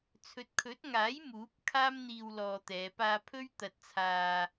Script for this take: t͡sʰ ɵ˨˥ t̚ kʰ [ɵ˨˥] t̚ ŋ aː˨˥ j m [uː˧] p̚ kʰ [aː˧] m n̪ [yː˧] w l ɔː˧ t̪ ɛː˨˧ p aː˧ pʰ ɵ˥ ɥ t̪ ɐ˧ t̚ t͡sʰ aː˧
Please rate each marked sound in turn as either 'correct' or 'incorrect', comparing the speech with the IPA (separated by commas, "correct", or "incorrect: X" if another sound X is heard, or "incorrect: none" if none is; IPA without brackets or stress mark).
correct, incorrect: uː˨˥, incorrect: aː˥, incorrect: iː˧